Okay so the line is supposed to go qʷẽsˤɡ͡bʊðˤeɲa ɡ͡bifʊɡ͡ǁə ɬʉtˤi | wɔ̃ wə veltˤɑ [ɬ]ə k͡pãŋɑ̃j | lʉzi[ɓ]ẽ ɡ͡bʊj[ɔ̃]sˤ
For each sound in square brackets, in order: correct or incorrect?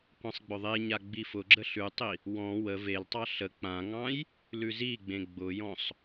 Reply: correct, incorrect, correct

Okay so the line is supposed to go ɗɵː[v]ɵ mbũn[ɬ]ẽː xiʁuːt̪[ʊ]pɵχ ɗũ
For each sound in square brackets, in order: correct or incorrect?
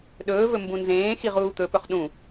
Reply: correct, incorrect, incorrect

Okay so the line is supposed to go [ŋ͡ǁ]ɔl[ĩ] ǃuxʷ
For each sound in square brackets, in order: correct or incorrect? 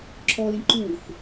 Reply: incorrect, correct

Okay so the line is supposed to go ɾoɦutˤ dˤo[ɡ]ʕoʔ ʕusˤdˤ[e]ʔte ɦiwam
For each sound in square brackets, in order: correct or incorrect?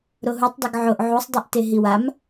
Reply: correct, incorrect

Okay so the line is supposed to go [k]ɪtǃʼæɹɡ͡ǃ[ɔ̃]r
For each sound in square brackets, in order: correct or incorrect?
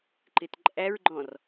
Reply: incorrect, correct

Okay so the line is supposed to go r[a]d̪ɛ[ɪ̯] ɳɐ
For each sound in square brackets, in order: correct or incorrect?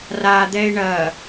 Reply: correct, correct

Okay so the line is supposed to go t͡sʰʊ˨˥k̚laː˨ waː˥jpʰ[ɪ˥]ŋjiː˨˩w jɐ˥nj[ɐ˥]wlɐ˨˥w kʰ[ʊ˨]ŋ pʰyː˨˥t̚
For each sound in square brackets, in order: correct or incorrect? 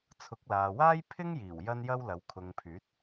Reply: correct, correct, correct

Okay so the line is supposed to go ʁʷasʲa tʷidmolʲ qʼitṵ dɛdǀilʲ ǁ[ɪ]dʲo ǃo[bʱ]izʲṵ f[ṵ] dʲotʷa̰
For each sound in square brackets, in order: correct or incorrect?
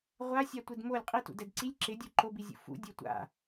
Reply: correct, incorrect, correct

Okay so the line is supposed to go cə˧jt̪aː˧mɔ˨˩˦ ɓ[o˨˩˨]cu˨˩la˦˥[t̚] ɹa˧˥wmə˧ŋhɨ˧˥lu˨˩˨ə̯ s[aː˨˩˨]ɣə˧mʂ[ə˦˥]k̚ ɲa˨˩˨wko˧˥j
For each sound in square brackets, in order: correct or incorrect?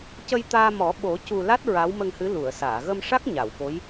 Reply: incorrect, correct, correct, incorrect

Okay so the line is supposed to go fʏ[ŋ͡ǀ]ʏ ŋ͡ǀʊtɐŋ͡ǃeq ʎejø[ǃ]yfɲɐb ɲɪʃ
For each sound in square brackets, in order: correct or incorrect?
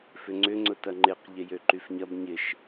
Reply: correct, correct

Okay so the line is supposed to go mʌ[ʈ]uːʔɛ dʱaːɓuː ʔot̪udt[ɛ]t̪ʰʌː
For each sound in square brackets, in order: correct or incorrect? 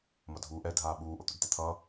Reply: incorrect, correct

